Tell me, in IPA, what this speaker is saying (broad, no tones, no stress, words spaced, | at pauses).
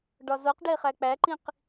ɖɒzoqɖe χæk͡pæǃĩq